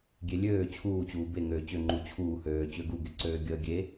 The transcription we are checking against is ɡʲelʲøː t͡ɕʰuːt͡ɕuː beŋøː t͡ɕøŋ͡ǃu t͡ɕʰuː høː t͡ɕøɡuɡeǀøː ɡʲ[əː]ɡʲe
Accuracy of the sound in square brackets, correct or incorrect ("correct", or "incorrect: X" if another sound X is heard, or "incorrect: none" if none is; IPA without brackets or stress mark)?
correct